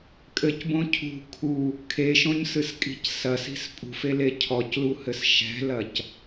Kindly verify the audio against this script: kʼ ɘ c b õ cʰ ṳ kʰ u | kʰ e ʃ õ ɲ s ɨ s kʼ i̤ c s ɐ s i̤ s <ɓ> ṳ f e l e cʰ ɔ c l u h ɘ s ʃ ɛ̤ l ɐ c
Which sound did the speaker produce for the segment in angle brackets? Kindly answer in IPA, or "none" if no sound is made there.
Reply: pʼ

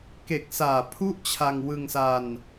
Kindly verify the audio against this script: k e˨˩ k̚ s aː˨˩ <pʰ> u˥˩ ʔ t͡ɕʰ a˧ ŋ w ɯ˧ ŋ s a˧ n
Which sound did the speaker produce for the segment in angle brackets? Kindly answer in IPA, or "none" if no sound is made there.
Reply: pʰ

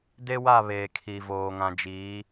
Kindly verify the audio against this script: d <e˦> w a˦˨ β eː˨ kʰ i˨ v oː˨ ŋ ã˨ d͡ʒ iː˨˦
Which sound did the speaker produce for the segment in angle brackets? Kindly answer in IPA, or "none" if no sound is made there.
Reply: e˦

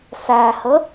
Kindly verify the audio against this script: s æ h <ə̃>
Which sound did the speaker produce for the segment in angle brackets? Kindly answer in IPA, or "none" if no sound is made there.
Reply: ə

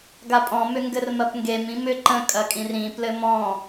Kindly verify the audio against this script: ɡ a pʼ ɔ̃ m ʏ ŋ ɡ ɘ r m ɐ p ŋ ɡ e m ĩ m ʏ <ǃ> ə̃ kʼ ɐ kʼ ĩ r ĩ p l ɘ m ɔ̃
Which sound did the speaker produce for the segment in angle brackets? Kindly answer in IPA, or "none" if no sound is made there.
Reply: ǃ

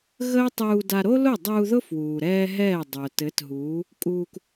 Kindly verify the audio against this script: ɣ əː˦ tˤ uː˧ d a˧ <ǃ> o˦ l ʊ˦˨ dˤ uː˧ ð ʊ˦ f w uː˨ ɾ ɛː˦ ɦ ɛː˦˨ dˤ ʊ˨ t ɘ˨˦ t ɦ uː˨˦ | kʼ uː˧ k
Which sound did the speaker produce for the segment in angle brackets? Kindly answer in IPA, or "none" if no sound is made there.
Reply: ɾ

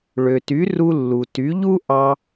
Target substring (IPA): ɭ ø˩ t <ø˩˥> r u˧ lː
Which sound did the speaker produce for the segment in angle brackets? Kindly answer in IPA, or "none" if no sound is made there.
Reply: y˩˥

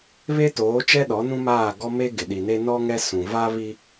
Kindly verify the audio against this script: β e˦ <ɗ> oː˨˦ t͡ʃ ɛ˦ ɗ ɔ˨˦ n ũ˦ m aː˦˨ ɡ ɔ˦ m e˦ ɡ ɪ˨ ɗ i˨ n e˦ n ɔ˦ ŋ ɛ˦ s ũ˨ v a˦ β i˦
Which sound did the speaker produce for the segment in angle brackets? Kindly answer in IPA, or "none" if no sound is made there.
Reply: t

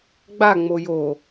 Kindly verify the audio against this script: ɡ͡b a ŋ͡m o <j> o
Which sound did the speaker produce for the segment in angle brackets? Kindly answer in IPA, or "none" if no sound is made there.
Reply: j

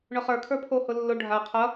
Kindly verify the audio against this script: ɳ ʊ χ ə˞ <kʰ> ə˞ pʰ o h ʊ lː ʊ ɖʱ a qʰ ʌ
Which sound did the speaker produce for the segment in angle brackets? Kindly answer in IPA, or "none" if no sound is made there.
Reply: kʰ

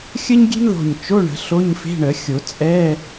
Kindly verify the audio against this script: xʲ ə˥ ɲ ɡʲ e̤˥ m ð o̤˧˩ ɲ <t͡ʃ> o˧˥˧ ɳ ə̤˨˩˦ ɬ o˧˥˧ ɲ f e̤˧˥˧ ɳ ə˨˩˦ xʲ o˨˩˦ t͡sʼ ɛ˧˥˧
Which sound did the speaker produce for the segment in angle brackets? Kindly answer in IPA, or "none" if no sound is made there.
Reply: t͡ʃ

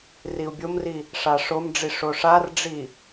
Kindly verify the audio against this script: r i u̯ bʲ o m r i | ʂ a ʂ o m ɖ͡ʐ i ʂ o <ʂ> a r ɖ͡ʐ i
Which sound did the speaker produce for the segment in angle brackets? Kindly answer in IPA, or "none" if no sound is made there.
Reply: ʂ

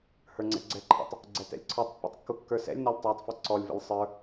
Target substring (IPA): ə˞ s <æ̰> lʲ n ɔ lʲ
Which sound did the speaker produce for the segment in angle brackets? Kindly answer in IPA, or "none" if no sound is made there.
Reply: ɛ̰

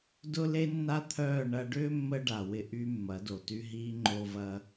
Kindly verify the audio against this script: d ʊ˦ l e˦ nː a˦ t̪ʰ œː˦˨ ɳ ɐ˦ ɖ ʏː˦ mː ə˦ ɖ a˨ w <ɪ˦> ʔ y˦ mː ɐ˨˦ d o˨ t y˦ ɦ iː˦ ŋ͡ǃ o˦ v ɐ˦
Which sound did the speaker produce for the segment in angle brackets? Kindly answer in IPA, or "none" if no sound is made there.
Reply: ɪ˦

